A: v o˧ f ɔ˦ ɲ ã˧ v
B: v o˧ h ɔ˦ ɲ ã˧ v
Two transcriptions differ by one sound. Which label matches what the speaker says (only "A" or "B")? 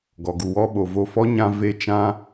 A